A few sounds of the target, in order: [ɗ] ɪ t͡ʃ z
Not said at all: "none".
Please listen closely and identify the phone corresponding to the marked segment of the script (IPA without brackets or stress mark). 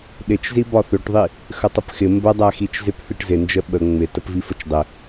ɗ